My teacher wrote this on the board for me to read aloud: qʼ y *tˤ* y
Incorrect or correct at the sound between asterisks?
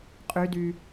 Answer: incorrect: d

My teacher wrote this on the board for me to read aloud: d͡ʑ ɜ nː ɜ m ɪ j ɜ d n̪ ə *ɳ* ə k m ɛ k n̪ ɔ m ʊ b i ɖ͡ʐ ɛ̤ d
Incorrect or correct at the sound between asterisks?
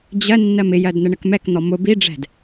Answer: correct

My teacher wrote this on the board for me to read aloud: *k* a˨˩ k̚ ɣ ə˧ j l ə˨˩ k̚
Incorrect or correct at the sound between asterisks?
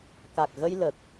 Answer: correct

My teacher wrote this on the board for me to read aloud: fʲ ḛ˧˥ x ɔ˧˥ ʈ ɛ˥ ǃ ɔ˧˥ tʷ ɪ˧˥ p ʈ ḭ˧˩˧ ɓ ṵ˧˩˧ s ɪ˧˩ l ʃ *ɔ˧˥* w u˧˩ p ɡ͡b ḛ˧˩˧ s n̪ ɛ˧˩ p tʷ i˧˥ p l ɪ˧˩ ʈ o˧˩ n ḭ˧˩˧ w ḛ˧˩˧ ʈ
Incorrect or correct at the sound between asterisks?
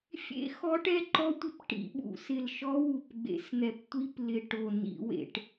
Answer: correct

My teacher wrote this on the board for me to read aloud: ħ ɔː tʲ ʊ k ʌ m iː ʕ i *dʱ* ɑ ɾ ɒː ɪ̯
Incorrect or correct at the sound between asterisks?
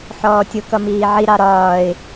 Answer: incorrect: ɾ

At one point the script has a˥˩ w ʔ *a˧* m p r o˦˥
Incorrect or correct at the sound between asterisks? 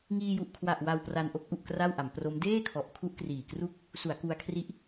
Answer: incorrect: a˩˦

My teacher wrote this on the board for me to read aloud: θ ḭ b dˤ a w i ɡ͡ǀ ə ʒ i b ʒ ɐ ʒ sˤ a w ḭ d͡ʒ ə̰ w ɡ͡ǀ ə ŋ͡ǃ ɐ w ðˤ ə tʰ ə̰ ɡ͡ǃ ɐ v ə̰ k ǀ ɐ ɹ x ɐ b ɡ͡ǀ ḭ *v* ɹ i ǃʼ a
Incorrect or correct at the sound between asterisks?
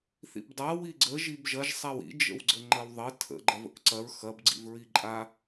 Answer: correct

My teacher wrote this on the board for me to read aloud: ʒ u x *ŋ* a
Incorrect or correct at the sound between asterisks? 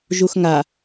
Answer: correct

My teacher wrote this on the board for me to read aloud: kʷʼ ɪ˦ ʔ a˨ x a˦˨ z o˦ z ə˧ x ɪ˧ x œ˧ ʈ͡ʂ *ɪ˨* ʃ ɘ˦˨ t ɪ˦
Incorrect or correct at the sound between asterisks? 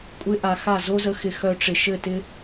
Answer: correct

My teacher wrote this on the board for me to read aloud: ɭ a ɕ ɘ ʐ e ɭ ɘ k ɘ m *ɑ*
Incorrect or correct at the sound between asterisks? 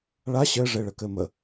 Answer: incorrect: ə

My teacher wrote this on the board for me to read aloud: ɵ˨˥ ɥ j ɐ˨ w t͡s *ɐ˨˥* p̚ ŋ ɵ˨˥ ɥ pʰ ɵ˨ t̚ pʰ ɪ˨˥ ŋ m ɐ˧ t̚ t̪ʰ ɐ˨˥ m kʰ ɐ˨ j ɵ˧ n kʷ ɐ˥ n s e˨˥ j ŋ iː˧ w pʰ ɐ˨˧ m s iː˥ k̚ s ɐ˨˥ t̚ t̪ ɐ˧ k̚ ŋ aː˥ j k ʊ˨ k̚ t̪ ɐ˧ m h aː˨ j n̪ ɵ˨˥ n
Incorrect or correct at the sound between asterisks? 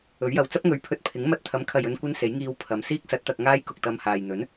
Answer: incorrect: ɐ˥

